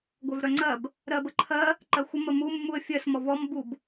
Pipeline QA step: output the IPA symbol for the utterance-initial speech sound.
ɡʷ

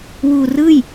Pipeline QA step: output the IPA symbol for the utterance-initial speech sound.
w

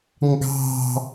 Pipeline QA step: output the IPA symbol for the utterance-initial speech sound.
ŋ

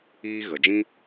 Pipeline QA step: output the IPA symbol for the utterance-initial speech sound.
iː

